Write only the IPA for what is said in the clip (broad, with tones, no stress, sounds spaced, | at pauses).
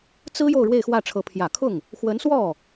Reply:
t͡s ɹ̩˥ j o˥˧ ʊ̯ ɻ w e˥˧ ɪ̯ x w ä˥˩ ʈ͡ʂʰ ɤ˧˥ pʰ j ä˨˩ kʰ ʊ˥˩ ŋ | x w ə˧˥ n s w ɔ˥˩